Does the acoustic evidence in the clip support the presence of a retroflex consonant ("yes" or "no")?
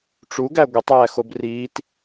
yes